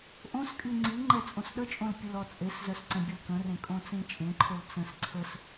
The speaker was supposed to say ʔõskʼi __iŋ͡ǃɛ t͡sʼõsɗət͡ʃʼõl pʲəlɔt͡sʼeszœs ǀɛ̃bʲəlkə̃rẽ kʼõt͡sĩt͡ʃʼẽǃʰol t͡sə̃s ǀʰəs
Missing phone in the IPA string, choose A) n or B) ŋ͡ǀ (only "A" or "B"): B